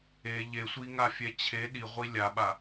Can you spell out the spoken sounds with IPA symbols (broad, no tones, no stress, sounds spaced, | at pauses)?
e ʎ e sʷ i ŋ a fʲ ɛ t͡ɕʰ e ɗ i ʁʷ i lʲ a ɓ a